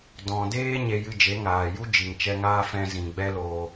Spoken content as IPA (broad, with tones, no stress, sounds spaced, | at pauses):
d ɔ̃˨ d eː˦ ɲ e˧ j ɨ˧ d͡ʒ e˨˦ ŋ aː˨ j u˦ d͡ʒ i˨ ŋ t͡ʃ ɛ˧ ŋ aː˦ f ɛ̃˧ z ĩ˨ ɡ͡b ɛ˦ l oː˧